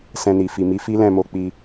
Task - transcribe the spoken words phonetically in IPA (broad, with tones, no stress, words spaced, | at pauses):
sɛ̃˧ni˨ fi˨mi˨˦ fi˦lɛ̃˦˨mo˧ k͡pi˧